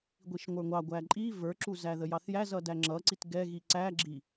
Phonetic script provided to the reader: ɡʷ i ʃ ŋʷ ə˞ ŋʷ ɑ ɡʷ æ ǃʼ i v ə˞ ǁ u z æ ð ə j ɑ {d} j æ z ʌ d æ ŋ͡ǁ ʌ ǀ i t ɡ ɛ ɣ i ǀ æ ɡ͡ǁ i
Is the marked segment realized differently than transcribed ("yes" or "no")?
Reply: yes